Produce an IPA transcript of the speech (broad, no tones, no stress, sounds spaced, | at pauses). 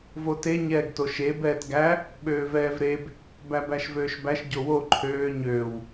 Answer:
v o t e ɲ ɛː ɡ t o ʃ e b ɛː t ɡ æ | ɓ øː v ɛː v ɾ e b | b æ b æ ʃ v øː ʃ b æ ʃ ɟ o w o ǃʰ øː ɲ øː w